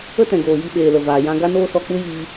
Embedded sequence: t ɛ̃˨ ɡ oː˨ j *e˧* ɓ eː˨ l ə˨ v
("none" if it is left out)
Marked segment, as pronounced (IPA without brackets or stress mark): i˧